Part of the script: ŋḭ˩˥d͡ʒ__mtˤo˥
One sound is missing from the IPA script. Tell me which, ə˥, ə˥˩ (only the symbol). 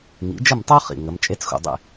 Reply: ə˥˩